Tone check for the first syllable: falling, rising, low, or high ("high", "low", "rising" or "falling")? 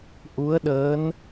rising